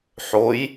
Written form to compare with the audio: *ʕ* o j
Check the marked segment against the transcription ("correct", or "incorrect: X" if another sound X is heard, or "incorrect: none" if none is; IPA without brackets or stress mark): incorrect: ħ